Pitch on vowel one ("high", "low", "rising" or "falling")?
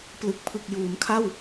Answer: low